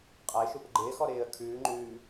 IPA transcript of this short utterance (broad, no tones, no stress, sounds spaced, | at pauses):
qʼ a ɪ̯ ʃ u p ɪ ɡ͡ǃ ɪː x ɔ ɾ ɪː ə̯ kʰ ʉː ŋ͡ǃ ʉː